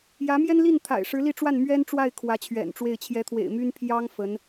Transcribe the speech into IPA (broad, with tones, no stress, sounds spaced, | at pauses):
j ä˧˥ m j ɛ˥ n l i˥˩ n t̪ʰ a̰˨˩ ɪ̯ ʂ ɻ̩˧˥ l i˥˧ ʈ͡ʂ w a˥˩ n m ɥ ɛ˥ n ʈ͡ʂ w a˥˩ ɪ̯ kʰ w ä˧˥ t͡ɕʰ ɥ ɛ̰˨˩ n ʈ͡ʂ w e˥˩ ɪ̯ t͡ɕʰ j ɛ˧˥ t̪ʰ w ḛ˨˩ ɪ̯ m y˥ n pʰ j ɑ˥ ŋ f ə˧˥ n